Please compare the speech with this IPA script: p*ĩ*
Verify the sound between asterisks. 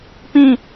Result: correct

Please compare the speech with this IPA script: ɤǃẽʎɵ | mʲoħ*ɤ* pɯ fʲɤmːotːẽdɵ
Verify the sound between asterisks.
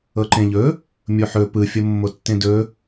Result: incorrect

